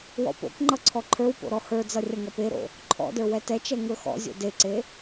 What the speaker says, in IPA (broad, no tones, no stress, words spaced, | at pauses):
wɔ̰po̰kŋ͡ǃʌ ǀʰɔǃʰə˞wpo̰ ɾɔhə˞d͡zʌ rʲʌŋʌpeɾo̰ | ǃʰɔ̰də˞ wɛtɛt͡ʃɛ ŋə˞xɔ̰zʲo̰ deǀe